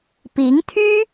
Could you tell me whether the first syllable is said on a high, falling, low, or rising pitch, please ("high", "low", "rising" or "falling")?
rising